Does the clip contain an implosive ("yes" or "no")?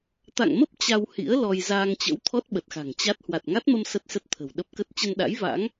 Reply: yes